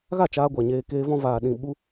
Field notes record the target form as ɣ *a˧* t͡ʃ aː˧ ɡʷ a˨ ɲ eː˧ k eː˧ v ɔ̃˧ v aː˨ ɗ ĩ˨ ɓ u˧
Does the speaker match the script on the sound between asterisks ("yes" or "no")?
no